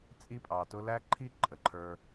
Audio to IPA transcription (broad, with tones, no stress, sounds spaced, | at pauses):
t͡sʼ i˦ pʼ ɑ˨ t ʊ˦ l æ˦ ǃʰ i˦ ǃʼ ə˨ ǃʰ ə˞˧